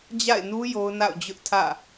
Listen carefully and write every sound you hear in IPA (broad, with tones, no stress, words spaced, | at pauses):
d͡ʑa̰˦˨ɪ̯nu˦ jo˦ʊ̯na̰˦˨ʊ̯d͡ʑʊ˦ʔtʰä̰˦˨